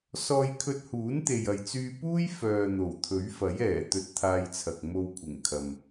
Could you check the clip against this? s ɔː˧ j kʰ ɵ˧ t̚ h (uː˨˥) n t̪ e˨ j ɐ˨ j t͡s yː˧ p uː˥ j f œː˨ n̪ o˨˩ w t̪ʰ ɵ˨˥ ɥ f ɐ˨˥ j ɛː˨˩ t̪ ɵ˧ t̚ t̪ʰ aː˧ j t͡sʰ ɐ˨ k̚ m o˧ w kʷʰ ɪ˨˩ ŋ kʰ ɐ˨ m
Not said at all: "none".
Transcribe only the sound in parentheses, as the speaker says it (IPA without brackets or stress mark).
uː˨˥